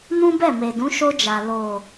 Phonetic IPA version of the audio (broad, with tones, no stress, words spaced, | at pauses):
nũ˦ bɛ˦˨me˨dũ˨˦ ʃo˧d͡ʒa˨ lo˨